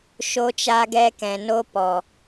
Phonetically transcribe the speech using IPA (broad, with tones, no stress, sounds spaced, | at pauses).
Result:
ʃ o˧ t͡ʃ a˧ ɡ ɛ˧ k ɛ̃˨ n o˦ p ɔ˨